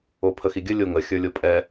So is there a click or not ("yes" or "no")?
no